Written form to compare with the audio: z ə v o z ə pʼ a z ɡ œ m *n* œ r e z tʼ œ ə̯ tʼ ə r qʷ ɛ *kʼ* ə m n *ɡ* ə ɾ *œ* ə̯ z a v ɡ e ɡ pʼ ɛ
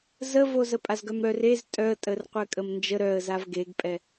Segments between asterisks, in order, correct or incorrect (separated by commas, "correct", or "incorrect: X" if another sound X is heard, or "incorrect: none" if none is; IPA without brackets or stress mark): incorrect: ɾ, correct, incorrect: d͡ʒ, correct